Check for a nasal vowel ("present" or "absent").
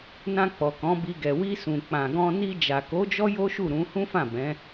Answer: present